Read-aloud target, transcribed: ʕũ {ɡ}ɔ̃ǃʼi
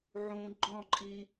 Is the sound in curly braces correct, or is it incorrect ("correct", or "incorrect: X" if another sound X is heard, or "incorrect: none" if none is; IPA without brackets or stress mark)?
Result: incorrect: ɡ͡ǃ